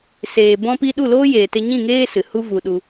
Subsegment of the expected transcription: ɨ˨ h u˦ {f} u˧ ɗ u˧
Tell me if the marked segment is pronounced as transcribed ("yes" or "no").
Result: no